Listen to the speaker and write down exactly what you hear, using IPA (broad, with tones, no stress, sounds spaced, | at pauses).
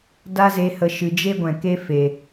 d a˦ z e˧ h ə˧ ʃ ɨ˨ d͡ʒ e˦ ɡʷ ɛ̃˨ k e˦ f e˨